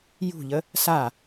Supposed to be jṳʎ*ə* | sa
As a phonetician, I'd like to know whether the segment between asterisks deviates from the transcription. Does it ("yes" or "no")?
no